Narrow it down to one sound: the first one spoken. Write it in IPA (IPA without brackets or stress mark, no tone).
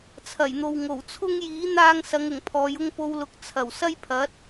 t͡sʰ